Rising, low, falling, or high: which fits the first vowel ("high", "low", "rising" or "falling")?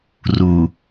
low